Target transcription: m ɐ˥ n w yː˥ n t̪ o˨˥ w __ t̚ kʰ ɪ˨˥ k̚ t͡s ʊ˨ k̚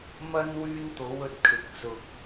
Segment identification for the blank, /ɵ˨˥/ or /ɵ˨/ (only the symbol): ɵ˨